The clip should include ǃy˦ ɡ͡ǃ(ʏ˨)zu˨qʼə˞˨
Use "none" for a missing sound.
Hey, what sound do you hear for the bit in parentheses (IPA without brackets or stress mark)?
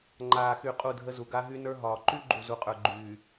u˨